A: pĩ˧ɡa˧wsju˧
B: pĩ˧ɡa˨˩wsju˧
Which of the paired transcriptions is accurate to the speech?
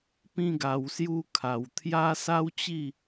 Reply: B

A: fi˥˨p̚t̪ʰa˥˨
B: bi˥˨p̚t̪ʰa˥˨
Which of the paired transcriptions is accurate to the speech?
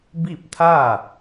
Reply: B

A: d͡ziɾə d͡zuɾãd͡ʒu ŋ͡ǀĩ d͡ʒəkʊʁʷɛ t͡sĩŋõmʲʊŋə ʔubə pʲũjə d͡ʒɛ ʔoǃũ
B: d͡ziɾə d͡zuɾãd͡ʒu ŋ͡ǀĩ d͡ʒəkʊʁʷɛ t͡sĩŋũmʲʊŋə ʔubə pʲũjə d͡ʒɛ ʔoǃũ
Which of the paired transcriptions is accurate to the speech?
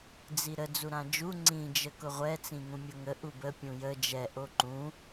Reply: B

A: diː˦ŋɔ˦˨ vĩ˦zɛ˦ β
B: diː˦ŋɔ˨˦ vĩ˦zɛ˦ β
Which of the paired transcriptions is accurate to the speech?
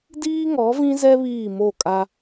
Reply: B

